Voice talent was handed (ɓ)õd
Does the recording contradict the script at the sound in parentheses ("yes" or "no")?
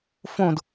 yes